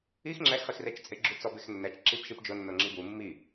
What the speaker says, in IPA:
i x ŋ͡ǁ ɛ x χ i x r e t͡ʃ t͡sʼ ɪ ɡ͡ǁ u t͡s ɔ b e x nː ɛ t͡ʃ ǁ i p ʃ i p d͡ʒ ʊ nː ʊ ŋ͡ǁ i b u mː i

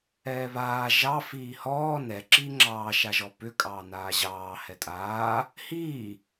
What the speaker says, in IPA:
ɛː β aː ʒ ɑ f iː h ɔː n ɛ ǁ iː ŋ͡ǁ ɑː ʃ a ʒ ɔ p ʏ kʼ ɑː n aː ʑ ɑː h ɛ tʼ aː | h iː

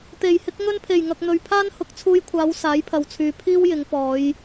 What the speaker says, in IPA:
t̪ e˨˩ j h ɪ˧ k̚ ŋ ɵ˧ n pʰ e˨˩ j ŋ ɐ˨ k̚ n̪ ɵ˨ ɥ pʰ aː˥ n h ʊ˨˥ k̚ t͡sʰ uː˧ j kʷʰ aː˨˧ w s aː˨˥ j pʰ ɐ˨ w t͡sʰ yː˨ pʰ iː˥ w j ɪ˨˧ ŋ p ɔː˨˧ j

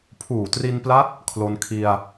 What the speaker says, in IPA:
pʰ uː˨˩ t r i˧ n p l a˦˥ t̚ | kʰ l o˧ n kʰ i˧ a̯

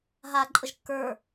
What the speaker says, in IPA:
ɦ a ǃʼ ə ʒ kː ə˞

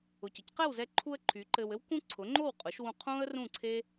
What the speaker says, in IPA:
ʊ˩ c ə˩ c q ɛ˥˩ w z ɛ˧ ǃʰ u˧ ə̯ ǃʰ y˩˥ ǃ ɘ˧ w ɘ˥ w k ũ˥ ǀʰ ʊ˩˥ ŋ͡ǃ o˥˩ w qʼ ʊ˩˥ ʃ w ũ˧ qʰ ũ˥ ə̯ r ũ˥˩ ǀʰ e˥

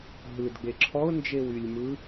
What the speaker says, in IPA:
ɦ ɯ d ɡ͡b e ǁʰ ɔ ʊ̯ n d͡ʒ e w y lʲ m ɯ

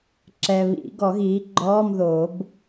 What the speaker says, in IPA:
ǁ ɛ˨ β ḭ˨˩˦ ɡ ɔ˨˩˦ ɣ iː˩˥ ɡ͡ǃ ɔː˧˥˧ m ð oː˨˩˦ b

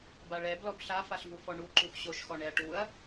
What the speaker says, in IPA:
b a ɭ ɛ b l ɔ b ɬ a f a ɬ v u f ɔ ɳ u ǃ u x ɕ o ʃ x ɔ ɳ ɛ ɐ̯ ʈ u ɐ̯

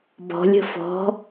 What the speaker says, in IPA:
b ɔ̤ lʲ ə̤ f ɔ̤

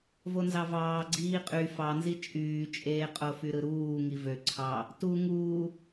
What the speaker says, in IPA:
v o n z ɑ v ɑː ɡ͡ǀ iː qʼ y f ɑ n z i t͡ʃʼ yː t͡ʃʼ eː qʼ o f y ɾ ɯ ɾ uː ŋ i v ø ǀʰ ɑ | t u ŋ uː

